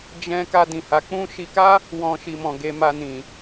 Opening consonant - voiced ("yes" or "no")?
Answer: yes